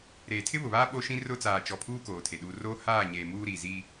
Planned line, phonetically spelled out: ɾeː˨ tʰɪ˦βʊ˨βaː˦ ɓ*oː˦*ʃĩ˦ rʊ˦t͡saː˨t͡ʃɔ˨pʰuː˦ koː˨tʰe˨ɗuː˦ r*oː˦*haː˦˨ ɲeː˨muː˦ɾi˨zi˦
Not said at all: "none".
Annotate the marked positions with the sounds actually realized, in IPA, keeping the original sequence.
o˦, oː˦

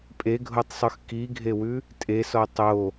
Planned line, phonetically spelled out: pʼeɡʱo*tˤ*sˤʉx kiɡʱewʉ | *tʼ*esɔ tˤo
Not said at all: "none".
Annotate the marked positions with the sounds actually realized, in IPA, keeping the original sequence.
tˤ, tʼ

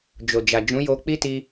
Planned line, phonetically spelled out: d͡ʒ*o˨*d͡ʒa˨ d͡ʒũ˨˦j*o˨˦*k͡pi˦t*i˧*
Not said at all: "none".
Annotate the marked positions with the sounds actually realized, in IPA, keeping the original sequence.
o˨, o˧, i˧

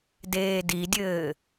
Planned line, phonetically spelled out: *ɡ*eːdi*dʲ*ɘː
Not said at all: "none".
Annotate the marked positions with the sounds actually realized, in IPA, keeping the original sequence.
d, dʲ

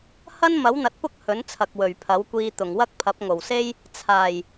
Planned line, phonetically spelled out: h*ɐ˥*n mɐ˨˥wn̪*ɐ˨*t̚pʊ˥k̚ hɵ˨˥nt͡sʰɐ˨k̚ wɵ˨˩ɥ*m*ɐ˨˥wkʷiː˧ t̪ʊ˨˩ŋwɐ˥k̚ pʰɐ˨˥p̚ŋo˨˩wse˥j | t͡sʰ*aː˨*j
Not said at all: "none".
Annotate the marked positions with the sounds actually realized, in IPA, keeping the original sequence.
ɐ˥, ɐ˨, pʰ, aː˨˩

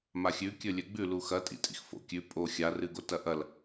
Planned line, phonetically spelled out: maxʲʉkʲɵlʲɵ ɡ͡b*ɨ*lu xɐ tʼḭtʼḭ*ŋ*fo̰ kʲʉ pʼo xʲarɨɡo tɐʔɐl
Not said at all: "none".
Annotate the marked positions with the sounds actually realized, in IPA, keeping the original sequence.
ʉ, x

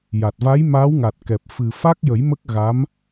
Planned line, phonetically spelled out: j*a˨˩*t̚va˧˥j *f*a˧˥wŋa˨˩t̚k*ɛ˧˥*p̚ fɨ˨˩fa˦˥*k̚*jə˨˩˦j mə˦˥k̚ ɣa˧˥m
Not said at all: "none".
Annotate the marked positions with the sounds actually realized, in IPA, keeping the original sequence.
a˨˩, m, ɛ˨˩, k̚

